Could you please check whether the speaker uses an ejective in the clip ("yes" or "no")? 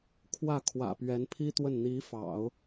no